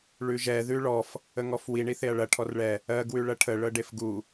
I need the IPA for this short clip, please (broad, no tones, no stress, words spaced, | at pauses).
ɭʉʒɛ ðʉɭɔf | əŋɔfwi ɳiθeɐ̯ɭɐ ʈʰɔrɭɛ | ɜ ɡwʉɭɐʈʰə ɭɤɖefɡu